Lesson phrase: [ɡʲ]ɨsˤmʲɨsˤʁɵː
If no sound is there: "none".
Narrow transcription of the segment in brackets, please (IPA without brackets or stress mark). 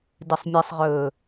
d